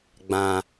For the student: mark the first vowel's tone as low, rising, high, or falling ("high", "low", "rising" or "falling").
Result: low